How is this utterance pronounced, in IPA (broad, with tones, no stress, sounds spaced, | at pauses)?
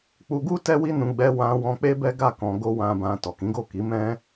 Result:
k͡p u˧ ɡ u˦ t ɛ˦ w i˦ n ũ˧ ɡ͡b ɛ˧ w ã˧ w ɔ̃˧ k͡p e˦ b ɛ˦ ɡ a˦˨ k ɔ̃˧ ɡ o˦ w ã˧ b ã˧ t ɔ˨ k ĩ˨˦ ɡ o˦˨ k i˨˦ m ɛ̃˦